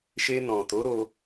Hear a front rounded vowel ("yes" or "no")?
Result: no